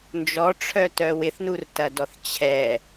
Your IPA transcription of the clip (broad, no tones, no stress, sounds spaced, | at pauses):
n d͡ʒ ɔ ʈ͡ʂʰ œ t œ w ɪ θ n u r t ɐ d ɔ θ t͡ɕʰ ɛ